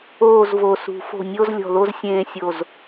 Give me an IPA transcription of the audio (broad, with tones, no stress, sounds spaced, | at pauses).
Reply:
oː˧˩ z v o˩˧ s ṳ˩˧ f o̤˧˩ nʲ o˥˧ z lʲ ɔ̤˧˩ ð o˥˧ z sʲ ẽː˧ sʲ o˧˩ z